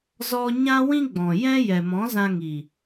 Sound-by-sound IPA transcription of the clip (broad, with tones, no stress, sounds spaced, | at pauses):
z ɔ˧ ɲ ã˦ w ĩ˦ ɡ͡b ɔ̃˨ j ɛ̃˦ j ɛ˨ m ɔ̃˨˦ z ã˧ ŋ i˨